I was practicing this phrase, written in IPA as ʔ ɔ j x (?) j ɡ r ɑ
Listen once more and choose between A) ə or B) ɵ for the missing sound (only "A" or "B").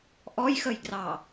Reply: A